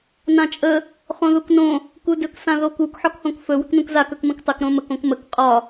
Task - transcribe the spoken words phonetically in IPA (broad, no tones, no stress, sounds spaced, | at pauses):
n ã t͡ʃʼ ə | χ õ ð u k n õ | k u d ɵ k s ã ð o k u k ħ ɒ k h õ k f ɵ w ə k n ũ k z a k ɵ k m ə̃ k tˤ ə k ɾ õ m ə k õ k m ə k qʼ ɒ